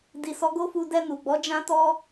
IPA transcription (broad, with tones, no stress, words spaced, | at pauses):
di˨ sɔ˨˦ɡo˦fu˧ dɛ˧nu˨ɡ͡bɔ˨˦ d͡ʒã˦ tɔ˦